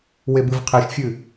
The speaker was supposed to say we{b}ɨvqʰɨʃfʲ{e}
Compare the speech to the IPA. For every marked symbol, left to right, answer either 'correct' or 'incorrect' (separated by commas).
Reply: correct, incorrect